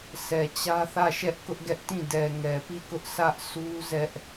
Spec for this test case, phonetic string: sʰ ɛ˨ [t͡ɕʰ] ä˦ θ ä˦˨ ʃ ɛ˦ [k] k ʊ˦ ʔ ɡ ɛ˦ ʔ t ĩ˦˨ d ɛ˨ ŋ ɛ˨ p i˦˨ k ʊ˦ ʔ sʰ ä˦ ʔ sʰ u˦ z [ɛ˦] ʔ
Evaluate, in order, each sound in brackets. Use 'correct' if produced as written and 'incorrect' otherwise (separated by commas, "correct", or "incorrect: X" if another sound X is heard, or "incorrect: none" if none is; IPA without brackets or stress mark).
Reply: incorrect: t͡ɕ, incorrect: ʔ, correct